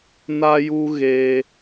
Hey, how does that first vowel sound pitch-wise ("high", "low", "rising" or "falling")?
high